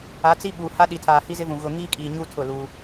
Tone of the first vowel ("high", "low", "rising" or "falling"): rising